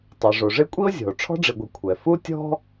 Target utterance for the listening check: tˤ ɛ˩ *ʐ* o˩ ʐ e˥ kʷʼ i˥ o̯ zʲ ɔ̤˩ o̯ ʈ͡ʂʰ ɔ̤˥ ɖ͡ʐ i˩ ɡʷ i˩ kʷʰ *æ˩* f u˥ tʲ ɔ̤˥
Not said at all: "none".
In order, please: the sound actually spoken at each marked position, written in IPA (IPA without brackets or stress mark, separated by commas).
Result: ʐ, ɛ˩